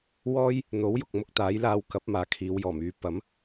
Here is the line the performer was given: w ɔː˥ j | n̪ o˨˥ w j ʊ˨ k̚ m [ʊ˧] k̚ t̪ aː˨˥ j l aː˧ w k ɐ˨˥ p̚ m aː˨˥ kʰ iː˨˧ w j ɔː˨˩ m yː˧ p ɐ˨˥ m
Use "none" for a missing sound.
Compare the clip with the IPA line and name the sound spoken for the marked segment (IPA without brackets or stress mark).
ʊ˧